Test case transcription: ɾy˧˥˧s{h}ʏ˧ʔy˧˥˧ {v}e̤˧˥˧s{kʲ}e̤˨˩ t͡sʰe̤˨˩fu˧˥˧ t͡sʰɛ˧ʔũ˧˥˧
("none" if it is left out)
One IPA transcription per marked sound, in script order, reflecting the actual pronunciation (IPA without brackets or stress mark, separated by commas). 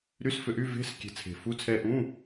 f, v, kʲ